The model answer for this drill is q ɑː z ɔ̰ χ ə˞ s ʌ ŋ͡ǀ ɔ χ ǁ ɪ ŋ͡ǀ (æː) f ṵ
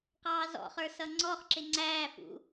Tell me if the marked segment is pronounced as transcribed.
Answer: yes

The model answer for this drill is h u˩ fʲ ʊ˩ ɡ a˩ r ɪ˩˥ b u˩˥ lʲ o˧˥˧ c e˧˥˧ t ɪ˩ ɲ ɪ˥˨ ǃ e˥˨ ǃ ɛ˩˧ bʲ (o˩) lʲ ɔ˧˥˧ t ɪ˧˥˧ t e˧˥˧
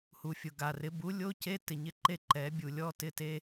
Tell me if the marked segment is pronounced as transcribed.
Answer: no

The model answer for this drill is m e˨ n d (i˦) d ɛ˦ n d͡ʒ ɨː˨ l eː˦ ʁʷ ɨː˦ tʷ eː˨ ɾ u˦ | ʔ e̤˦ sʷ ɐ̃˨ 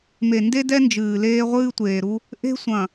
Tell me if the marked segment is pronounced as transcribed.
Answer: no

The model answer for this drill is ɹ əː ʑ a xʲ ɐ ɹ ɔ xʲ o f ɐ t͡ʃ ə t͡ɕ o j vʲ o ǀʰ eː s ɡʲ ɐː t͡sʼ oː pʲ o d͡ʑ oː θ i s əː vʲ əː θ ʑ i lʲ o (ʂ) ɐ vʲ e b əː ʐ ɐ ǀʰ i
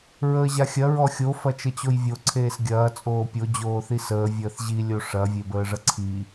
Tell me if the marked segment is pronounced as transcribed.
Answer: yes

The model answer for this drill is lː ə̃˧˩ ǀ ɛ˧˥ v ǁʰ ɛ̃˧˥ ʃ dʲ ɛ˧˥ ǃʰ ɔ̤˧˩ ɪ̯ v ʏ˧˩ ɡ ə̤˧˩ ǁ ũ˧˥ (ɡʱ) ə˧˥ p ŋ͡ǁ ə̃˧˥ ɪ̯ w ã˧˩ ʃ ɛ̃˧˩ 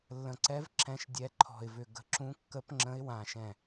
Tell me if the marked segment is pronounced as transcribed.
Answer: no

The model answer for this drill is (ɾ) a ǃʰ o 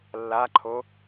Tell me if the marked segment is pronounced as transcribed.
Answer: no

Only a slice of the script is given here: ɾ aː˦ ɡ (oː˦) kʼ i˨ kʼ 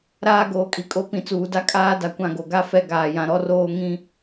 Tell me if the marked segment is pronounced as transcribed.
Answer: no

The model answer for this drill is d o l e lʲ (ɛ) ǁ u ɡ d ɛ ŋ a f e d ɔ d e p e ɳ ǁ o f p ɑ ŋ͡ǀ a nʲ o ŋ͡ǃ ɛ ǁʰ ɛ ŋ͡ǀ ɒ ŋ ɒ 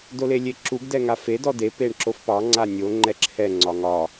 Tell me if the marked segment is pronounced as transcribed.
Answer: no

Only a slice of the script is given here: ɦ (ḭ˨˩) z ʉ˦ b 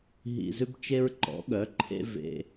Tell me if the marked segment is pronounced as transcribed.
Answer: yes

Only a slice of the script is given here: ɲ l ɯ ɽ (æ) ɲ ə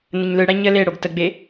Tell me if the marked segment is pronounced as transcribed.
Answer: yes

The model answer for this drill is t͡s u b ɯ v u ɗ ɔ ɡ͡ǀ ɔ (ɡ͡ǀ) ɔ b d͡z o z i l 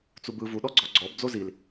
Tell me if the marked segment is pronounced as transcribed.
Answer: yes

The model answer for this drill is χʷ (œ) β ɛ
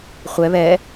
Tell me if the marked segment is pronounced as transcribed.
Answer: no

